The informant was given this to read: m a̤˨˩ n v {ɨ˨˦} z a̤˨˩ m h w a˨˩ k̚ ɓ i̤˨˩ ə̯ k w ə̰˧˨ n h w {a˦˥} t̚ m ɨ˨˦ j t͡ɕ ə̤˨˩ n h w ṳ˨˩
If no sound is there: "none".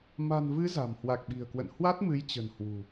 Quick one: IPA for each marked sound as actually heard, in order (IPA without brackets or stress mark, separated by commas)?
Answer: ɨ˨˦, a˦˥